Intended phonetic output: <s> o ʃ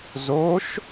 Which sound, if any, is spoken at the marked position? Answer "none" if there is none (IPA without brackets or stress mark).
z